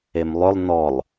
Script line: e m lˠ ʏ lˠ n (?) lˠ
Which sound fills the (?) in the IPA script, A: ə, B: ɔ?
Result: B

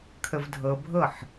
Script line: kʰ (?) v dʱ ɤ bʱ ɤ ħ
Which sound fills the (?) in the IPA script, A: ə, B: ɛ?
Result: A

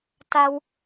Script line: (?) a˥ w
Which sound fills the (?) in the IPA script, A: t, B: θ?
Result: A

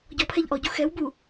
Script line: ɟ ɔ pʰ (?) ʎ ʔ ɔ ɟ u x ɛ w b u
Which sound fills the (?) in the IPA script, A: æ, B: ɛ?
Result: B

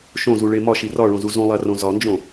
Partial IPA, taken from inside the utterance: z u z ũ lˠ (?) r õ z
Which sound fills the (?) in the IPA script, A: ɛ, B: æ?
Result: B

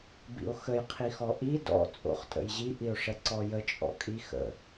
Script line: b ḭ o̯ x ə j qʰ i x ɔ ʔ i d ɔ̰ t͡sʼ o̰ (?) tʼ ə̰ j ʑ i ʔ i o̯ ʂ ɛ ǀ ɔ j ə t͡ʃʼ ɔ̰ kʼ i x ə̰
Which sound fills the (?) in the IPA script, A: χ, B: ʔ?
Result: A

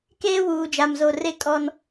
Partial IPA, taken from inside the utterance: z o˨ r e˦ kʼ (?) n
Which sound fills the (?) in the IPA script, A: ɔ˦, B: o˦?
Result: A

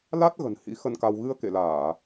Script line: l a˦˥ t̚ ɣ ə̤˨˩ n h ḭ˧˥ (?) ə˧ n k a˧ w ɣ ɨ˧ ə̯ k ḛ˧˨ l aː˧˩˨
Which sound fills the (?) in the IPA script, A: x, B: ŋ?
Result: A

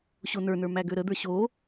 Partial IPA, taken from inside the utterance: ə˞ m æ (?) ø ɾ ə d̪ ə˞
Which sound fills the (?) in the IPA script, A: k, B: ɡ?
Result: B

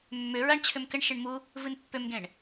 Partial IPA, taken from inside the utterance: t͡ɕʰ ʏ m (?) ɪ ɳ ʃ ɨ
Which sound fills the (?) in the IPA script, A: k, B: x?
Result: A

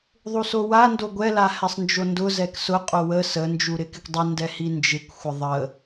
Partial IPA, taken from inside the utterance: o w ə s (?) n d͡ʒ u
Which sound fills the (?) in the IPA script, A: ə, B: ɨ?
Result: A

